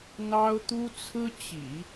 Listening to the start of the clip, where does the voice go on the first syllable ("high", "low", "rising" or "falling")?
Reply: high